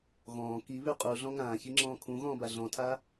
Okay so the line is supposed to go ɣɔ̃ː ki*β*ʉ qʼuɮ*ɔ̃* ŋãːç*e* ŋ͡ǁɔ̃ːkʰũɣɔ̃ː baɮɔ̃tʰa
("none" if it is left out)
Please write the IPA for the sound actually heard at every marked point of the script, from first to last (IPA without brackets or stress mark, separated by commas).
β, ɔ̃, i